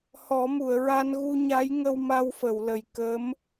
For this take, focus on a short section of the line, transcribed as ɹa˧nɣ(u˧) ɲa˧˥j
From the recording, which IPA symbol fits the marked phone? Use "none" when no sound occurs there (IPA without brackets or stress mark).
u˧